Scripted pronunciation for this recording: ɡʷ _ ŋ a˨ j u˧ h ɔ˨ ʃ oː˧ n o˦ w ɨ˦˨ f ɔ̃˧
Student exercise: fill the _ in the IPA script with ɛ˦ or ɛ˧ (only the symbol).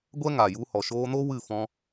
ɛ˦